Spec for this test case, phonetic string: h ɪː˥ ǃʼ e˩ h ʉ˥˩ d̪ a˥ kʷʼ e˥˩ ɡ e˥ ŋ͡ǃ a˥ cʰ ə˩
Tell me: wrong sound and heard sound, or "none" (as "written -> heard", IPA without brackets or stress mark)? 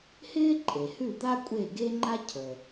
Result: none